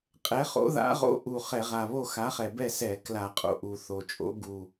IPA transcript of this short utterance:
qʼ ɛ˨˥ χ o̰˨˥ ð a̰˨˥ ʁ o̰˨˥ ʔ u˨˩ χ ɛ˧˩˧ ʁ a˨˩ β o˥˨ x a˨˥ χ ɛ˨˩ b ɛ˥˨ s ɛ˧˩˧ k l a˧˩˧ qʼ o̰˨˩ ʔ u˨˩ θ o˨˩ t͡ʃʼ o̰˨˥ ɡ u˨˩

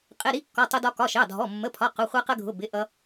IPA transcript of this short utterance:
qʼ ɪ˩˧˩ ɾ i˧ kː ɔ˩˧˩ tˤ ʊ˧ d ɒ˧ k ɒ˩˧˩ ʃ ɑ˩˧˩ dʱ ɔ˩˧˩ mː ə˩˧˩ pʰ ɒ˩˧˩ q ʊ˩˧˩ χʷ ɜ˧ q ə˧ ɡʱ ʊ˩˧˩ b ɪ˩˧˩ ʔ ʌ˧

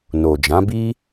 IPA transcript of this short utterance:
n o˨ d͡ʒ ã˨˦ b i˦

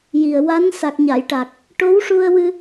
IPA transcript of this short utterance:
j i˨˩ ə̯ w a˧˥ n s a˨˩ k̚ ɲ a˨˩˨ j ʈ a˨˩ k̚ | ʈ o˧˥ w ʂ u˧ ə̯ w ɨ˧

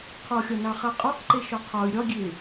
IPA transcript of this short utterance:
qʰ ɔ xʲ ɒ n ɑ χ a qʼ ɔ q ǃ e ʃ ɒ qʰ ɒ y̯ ɾʲ ɒ ɡʲ e

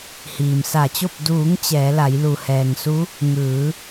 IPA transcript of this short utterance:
h iː˩ m s a˧˩ t͡ɕ o˥˨ p̚ d uː˩˧ ŋ t͡ɕ ɛː˩˧ l a˩˧ j l u˩ h ɛː˩ ŋ s u˧˥ | ŋ ɯː˩˧

